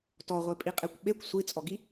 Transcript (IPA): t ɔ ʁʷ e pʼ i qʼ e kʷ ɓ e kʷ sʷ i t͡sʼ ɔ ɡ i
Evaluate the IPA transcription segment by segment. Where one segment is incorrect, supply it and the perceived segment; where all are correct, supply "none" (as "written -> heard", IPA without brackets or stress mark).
none